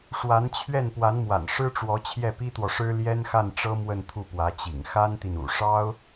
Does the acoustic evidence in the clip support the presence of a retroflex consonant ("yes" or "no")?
yes